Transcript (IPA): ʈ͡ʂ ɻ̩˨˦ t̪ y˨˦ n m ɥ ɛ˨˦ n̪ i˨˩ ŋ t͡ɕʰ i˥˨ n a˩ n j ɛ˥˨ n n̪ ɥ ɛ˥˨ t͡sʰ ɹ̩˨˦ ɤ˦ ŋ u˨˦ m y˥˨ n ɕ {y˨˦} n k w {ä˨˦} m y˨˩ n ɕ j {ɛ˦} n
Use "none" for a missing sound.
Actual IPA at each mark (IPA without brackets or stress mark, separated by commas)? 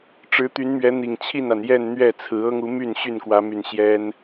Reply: y˥˨, ä˨˦, ɛ˦